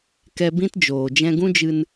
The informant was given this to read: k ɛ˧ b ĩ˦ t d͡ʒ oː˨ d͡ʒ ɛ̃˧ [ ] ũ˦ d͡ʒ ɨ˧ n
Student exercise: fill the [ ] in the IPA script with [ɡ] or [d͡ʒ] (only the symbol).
ɡ